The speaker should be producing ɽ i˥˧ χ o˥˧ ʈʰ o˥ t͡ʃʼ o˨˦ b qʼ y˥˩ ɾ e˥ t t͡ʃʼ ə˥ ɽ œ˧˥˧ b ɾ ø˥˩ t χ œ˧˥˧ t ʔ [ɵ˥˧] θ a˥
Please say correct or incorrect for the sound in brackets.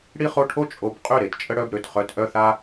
incorrect